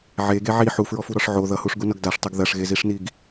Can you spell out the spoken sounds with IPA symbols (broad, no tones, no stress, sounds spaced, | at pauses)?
ʕ e ɡ e ʕ i ħ u f ɹ ɔ f u ɾ ɔ ʂ ʕ o ð ʌ h u ʂ ɡ u n ʌ ɡ d a ʂ tˤ i ɡ ð ɐ ʂ ɣ e z i ʂ n i ɡ